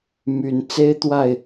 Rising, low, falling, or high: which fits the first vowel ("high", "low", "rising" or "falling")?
low